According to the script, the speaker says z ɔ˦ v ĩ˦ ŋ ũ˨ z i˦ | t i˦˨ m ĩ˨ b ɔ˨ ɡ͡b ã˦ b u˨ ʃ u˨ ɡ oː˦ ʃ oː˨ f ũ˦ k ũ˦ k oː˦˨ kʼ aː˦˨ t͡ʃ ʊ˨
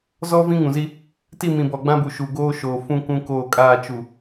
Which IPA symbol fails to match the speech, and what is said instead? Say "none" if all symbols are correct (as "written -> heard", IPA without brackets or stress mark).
ʊ˨ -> u˨